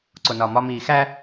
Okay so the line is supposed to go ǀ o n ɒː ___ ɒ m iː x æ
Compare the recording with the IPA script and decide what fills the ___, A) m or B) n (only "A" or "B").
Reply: A